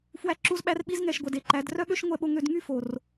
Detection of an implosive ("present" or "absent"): present